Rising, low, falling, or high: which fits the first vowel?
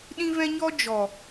high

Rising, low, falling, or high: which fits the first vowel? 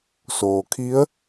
low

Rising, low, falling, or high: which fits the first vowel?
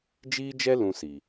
high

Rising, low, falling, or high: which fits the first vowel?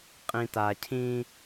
low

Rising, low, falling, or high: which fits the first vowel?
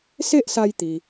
high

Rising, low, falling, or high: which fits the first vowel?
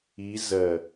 rising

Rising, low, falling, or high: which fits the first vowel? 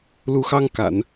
rising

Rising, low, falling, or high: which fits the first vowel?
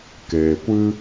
low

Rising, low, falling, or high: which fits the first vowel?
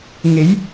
rising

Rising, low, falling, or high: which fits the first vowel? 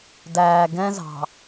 low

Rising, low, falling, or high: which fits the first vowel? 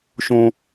high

